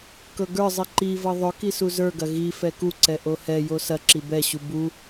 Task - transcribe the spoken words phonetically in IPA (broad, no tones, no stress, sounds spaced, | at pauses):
k ɤ ɡ ə˞ zˤ i ǃ i v ɤ ðˤ ɵ k i s u z ə˞ ɡ ɐ ɣ i f ɛ k u ǀ ɛ ʔ o h ɛ j o s ɐ ǁ i b ɛ ɕ u b u